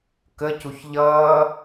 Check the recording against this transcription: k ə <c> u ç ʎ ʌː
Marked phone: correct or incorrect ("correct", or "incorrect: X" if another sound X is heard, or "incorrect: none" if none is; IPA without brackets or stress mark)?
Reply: correct